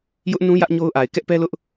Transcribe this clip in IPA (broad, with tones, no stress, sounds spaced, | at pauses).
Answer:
j ʊ˦ ʔ n ũ˦ j ä˦ ʔ ɲ o˦ ʊ̯ ʔ a˨ ɪ̯ k ɛ˦ ʔ p ɛ˦ l ʊ˦ ʔ